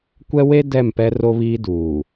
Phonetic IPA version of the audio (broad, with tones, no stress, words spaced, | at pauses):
kʷɛ˦we˦ dɛ˦˨mpɛ˦ ro˦βiː˦ duː˨